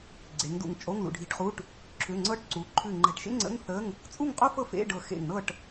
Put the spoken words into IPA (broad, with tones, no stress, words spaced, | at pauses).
ɡ͡ǀe˩˧ŋ dṵ˧˩ŋt͡ʃʼo˧˥˧ŋ lṵ˩˧ɖʱi̤˧˩ʈχu˧˥˧ʈ | ǁʰʏ˩˧˩ŋ͡ǀɤ˧˥˧ʈǀu˩˧ǃʰʉ˧˩ ŋ͡ǃɛ̤˧˩ʈʃḛ˥ŋ͡ǀə̰˧˥˧ŋ θə˧˥˧ŋ | t͡sʼu˥˨ŋqʼo˥fɤ˥˨fḛ˧˥˧ ɖɤ˧˩xḛ˧˩ŋ nɤ˥˨ʈ